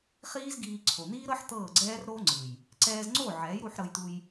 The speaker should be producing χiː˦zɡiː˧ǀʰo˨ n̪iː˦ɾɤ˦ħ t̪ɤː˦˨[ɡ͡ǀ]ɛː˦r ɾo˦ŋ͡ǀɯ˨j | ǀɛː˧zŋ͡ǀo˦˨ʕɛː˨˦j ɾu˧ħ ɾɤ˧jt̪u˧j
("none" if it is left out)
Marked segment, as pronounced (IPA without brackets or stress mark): ɡ͡ǀ